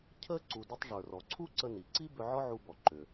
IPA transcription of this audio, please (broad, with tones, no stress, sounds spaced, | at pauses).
cʰ ə˥ ǀ u˧ d ʏ˥ tˤ ʐ ə˞˩ r ɔ˩ ǀʰ u˥ ǀ ə˧ n i˩ ǀ i˥ b ʏ˧ ʕ ɔ˥ ʕ u˧ b ɔ˩ ǃ ʏ˩